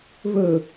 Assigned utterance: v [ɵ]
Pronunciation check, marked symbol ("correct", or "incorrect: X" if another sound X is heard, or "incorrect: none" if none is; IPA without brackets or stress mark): correct